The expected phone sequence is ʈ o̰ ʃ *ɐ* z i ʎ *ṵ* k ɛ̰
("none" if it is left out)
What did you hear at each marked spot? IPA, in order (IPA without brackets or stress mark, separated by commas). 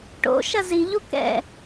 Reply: ɐ, u